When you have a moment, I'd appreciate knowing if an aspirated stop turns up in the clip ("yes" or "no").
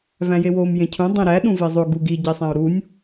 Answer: yes